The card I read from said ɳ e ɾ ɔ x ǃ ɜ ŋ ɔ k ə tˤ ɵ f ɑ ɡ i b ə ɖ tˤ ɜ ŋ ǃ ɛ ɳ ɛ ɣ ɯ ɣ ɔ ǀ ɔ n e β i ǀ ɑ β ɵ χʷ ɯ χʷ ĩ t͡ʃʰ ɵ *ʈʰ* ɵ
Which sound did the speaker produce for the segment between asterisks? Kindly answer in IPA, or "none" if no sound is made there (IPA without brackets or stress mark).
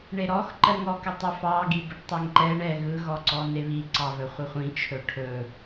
ʈʰ